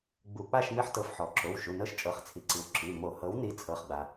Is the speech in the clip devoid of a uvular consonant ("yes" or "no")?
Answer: no